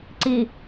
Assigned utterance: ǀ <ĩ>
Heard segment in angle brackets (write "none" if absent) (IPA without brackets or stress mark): i